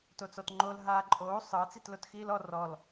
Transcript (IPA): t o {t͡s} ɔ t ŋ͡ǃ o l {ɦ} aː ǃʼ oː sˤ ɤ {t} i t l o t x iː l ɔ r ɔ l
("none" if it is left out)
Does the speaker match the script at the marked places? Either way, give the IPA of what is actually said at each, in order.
t͡s, ɦ, t͡s

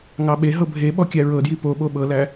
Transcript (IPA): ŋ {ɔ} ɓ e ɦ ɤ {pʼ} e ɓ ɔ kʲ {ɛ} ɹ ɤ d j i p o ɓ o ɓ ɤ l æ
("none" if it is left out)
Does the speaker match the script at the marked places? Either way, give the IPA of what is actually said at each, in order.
ɑ, bʱ, æ

